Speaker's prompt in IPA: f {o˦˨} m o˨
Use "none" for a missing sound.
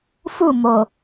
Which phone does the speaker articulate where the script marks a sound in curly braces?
u˦˨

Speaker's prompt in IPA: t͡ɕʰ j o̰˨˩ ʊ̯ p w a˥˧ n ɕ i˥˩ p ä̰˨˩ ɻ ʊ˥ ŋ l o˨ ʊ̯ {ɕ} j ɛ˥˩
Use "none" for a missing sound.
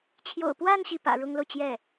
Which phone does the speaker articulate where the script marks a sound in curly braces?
t͡ɕ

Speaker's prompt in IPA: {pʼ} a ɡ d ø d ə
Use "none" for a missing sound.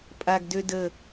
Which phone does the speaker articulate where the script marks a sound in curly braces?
pʼ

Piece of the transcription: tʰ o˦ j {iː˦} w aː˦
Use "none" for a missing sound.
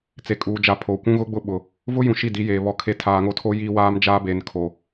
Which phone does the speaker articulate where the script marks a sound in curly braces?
iː˦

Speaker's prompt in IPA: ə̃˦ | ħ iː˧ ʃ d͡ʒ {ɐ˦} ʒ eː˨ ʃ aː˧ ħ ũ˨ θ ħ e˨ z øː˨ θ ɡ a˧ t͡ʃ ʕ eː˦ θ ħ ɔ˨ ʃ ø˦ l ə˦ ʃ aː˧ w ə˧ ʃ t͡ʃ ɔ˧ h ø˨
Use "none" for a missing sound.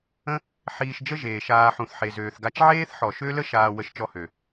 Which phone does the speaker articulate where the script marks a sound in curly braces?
ə˦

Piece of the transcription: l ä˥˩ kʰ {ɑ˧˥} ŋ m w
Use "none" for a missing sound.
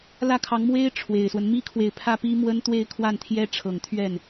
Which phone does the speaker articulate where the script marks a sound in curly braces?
ɑ˧˥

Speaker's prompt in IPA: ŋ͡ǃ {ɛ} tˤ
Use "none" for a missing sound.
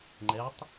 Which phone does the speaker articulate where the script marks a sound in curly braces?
ɛ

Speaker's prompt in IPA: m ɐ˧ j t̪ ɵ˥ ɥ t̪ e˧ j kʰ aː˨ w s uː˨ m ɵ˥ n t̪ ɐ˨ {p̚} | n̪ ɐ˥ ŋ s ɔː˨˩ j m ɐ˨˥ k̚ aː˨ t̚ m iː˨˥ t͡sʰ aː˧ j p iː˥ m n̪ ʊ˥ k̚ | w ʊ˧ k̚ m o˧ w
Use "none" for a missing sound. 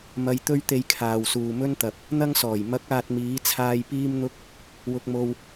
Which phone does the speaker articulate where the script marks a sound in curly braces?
p̚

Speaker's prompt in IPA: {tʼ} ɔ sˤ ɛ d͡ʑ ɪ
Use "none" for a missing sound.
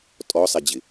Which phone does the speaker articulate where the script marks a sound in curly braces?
tʼ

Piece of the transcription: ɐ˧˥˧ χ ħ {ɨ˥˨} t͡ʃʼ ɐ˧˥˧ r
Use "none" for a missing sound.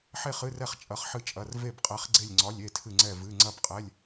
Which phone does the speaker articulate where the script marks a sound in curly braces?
ɨ˥˨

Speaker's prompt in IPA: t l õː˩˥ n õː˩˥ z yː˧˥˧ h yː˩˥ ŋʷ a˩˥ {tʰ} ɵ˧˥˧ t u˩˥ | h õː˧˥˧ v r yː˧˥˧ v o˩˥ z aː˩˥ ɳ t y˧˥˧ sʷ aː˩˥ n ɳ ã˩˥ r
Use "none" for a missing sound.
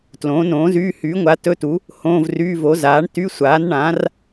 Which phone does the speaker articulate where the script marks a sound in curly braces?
t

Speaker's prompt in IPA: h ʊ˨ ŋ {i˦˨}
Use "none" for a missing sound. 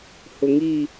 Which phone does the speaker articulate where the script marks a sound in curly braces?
i˦˨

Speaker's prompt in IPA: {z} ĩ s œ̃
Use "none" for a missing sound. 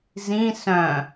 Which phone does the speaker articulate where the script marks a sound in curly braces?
z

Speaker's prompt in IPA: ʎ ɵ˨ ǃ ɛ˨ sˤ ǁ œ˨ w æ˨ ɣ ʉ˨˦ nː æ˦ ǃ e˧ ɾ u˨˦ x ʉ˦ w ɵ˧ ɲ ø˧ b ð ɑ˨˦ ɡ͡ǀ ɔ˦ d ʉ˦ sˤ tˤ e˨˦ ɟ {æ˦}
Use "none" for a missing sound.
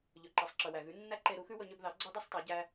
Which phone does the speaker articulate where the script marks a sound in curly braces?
æ˦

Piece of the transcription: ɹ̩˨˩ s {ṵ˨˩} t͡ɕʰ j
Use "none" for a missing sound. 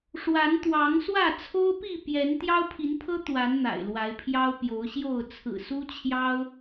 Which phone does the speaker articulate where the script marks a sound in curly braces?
u˦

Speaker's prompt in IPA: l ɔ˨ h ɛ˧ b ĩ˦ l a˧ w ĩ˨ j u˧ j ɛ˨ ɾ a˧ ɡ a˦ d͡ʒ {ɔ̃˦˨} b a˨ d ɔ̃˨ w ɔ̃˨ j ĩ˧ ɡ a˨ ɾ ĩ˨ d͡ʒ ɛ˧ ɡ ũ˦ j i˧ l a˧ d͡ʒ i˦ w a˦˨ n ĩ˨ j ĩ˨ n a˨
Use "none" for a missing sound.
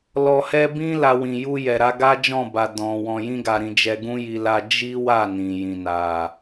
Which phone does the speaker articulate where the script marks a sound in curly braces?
ɔ̃˦˨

